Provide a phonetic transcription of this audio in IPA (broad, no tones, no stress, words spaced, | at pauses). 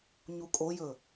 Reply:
ɲukʼojɵ